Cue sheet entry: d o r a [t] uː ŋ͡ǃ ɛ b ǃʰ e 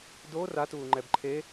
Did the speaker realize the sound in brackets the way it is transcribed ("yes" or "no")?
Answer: yes